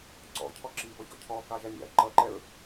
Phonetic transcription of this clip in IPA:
ǀ ɔ̰ cʰ ɔ ǁ i b ɔ ç ɔ̰ cʰ ɔ k ɑ ʒ æ nʲ ɑ̰ ɐ̯ ǃ ʌ ǃ ɛ ɹ

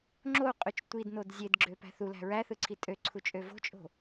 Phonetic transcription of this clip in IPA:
ŋ͡ǁ o u̯ qʼ y t͡ʃ tʷ i d n o d zʲ e d ɡ͡ǁ ø p æ̤ θ u l æ̤ ɹ æ θ ɯ ǀʰ i tʼ ø ǀʰ u t͡ʃʼ ø v o̤ t͡ʃʼ o̤

